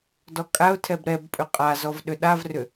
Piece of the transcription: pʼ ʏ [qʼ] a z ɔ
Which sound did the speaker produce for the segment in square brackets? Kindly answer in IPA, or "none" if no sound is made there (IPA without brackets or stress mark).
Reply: qʼ